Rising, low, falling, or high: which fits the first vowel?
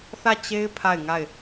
falling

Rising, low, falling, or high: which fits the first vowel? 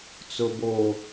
low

